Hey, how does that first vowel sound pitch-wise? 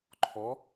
rising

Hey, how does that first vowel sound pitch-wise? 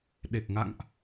low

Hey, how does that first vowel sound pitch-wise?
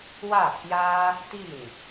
falling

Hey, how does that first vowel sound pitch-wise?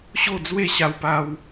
falling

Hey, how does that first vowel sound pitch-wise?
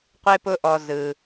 high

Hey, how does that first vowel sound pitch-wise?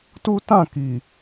high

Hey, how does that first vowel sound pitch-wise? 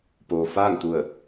low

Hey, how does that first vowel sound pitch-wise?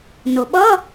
low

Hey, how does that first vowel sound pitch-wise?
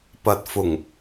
low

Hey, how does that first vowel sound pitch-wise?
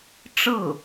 falling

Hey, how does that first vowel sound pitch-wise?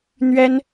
high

